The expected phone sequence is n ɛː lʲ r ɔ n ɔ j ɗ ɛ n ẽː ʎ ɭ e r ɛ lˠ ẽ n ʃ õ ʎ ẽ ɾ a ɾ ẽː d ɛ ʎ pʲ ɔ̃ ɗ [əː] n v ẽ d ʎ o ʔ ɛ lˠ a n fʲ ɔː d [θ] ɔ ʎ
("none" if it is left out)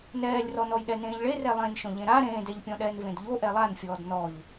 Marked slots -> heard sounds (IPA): ɛː, n

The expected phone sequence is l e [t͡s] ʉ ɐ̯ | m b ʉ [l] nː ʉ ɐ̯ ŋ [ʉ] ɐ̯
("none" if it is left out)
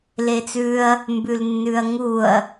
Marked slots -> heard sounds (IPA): t͡s, l, u

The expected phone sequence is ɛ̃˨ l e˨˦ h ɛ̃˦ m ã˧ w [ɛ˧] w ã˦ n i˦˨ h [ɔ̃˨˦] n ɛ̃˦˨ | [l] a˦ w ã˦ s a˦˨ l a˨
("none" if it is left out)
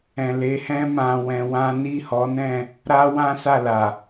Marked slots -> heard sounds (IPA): ɛ̃˧, ɔ˨˦, ɾ

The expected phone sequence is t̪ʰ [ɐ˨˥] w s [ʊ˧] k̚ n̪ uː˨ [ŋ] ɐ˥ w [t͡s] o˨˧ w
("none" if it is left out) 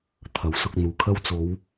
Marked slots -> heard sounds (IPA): ɐ˨˥, ʊ˧, kʰ, t͡s

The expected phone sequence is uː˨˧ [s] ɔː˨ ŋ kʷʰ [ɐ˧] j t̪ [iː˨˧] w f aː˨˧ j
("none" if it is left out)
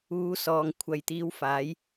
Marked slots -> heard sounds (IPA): s, ɐ˨, iː˨˧

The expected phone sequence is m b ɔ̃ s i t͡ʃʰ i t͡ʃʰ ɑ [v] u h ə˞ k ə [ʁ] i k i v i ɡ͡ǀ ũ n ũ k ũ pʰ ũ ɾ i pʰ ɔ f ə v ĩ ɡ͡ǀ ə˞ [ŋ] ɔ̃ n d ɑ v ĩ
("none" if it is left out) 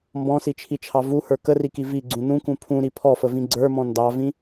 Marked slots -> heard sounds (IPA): v, r, m

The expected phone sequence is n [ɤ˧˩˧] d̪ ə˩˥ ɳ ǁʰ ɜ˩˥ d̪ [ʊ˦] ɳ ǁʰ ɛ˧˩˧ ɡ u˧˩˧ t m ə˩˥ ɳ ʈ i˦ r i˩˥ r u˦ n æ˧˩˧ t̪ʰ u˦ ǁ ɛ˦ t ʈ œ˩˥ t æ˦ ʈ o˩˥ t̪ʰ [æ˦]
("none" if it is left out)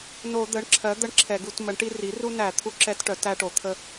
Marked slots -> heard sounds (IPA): o˧˩˧, ə˦, ə˦

